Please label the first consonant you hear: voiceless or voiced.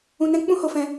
voiced